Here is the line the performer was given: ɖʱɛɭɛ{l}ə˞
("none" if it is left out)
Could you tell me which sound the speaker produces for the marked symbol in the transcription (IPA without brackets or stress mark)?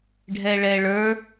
ɭ